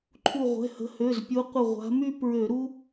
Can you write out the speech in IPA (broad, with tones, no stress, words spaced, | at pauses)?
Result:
ǃʰu˧˩ʁʷɛ̤˩˧˩hə̤˨˦ hø˩˧˩zpʲu˨˦qʷə˧˩ ʁʷa̤˨˦my˥ pɹø˧˩˧ɾu˥